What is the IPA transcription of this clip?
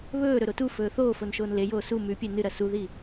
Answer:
βɵːɾɵ ɾotufɵː θoːfon ʃoːnlejoː su mʉpʲe nɨɾɐ suði

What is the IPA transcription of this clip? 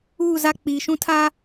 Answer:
uː˦˨ za˦ k͡piː˨ʃũ˦tʰaː˦

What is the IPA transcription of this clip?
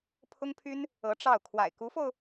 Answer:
pʰʊ˥ŋpʰy˥n | ɤ˧˥ ʈ͡ʂɑ˥˩ʊ̯ kʰwa̰˨˩ɪ̯ku˧˥fo˧ʊ̯

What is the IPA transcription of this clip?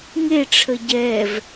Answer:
ŋeʈ͡ʂʰə ɟɛv

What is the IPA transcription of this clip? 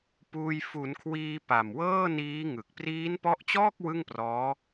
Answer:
puː˧j fu˩˦nkʰwiː˧ pa˨˩mwɤː˥˩niː˦˥ŋɯ˨˩k̚ priː˦˥npɔ˦˥ʔt͡ɕɔː˥˩k̚ wɯ˥˩ŋprɔː˦˥

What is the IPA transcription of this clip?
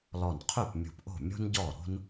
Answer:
lɔ˧˩nqʰy˥˩p mʲṳ˧˩pʔo̤˥˩mʲo̤˥n ɟɔː˥˩ɾo̤˥n

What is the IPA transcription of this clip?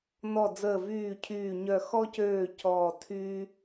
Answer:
nɔ˧˩d͡zəː˧˩vyː˧˩ cʰyː˧˩ɲœ˧˩ xɔ˦cøː˧˩ cɔː˧˩tʰyː˦

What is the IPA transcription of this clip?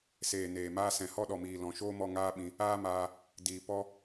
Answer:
seː˨neː˨maː˧ sɛ̃˨hɔ˦ɗɔ˨miː˨ lɔ̃˨ʃoː˦mɔ˧ ŋaː˦ɓĩ˧ | aː˦maː˧ | diː˨ pɔ˦

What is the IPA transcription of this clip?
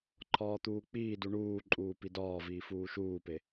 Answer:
ǃʰɒːt̪uːk͡piːdu ɳuːǃʼuː pidɒːviː fuːʃuːpe

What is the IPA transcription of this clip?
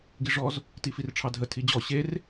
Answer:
ɡiʐɔz | tifirʈ͡ʂʰɑdʱə tʰid͡ʑɔ ɕer

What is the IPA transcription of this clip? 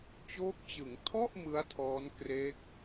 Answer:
t͡ɕoː˦˥k̚t͡ɕɯ˩˦ŋ tʰɔ˥˩ʔ mɯ˦˥a̯tʰɔː˦˥n kre˦˥k̚

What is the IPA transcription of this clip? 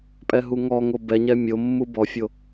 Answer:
pʼɛɦuŋɔŋo bɛɲɛ mʲomːu bɔfʲo

